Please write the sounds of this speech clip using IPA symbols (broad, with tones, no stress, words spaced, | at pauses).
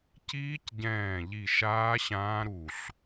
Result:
ciː˦˥cɟɛ̃ː˧˩ʎi˧˩ ʃaː˦˥ɕãː˦˥ ɾu˧˩ɬ